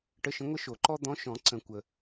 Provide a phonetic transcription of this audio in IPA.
ʈə˧˥˧ʃə̃˧˥ ŋʷə˥ʃo˨˩˦ǃɔ˥ d̪ɔ̃˧˥ʃɔ̃˨˩˦ ǀə̃˨˩˦kʷə˩

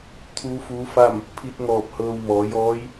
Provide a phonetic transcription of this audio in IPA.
t̪ʰuː˧˥fuː˧˥fa˥˨m | pʰi˧t̚ŋɔː˧˩p̚ hɤː˧w mɔː˩˧jɔː˧˥j

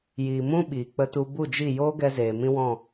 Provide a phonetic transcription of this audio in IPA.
jiː˨mũ˦ ɓiː˨k͡pə˧tu˧ bu˦˨d͡ʒi˦˨ joː˦ɡɛ˧ zeː˨ mĩ˦wɔ̃˦˨

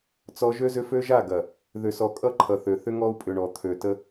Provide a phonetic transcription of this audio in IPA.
t͡sɔ˦ ʒø˦zʏ˦ fø˦ʒa˦˨ ɡɐ˨ | ðʏ˨sɔ˨ kʼʌ˦ǃʰʌ˨θø˨ θʏ˦ŋɔ˦u̯pʼʏ˨ɳɔ˨ t̪ʰø˨tə˦

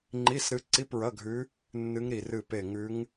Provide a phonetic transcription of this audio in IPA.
ŋ͡ǃi˧˥˧sɾɨ˧˥ ǀi˧˥˧pɹɐ˧˥˧ɡʱʉ˧˥ | nːɨ˧˥ŋɾi˧˩ rɨ˧˩ pe˧˩ŋʉ˧˥ŋ

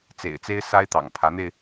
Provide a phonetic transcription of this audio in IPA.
t͡sḛ˨˩ɪ̯t͡se˥ɪ̯ sa˥ɪ̯t̪ɑ̰˨˩ŋ pʰä˧˥n̪e˧ɪ̯

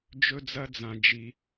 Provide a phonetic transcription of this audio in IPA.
d͡ʒɵ˥d͡zɐ˥d͡zã˧d͡ʒi˧

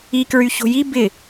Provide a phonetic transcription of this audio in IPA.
ikɹyço̤ ji bɪ

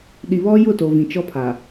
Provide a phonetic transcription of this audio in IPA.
ɗi˨βɔ˦jʊ˦˨to˨ vĩ˨t͡ʃɔ˦pʰa˨

